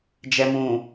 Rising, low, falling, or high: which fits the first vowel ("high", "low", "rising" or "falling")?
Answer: low